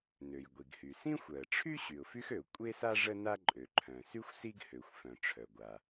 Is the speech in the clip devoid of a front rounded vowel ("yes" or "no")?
no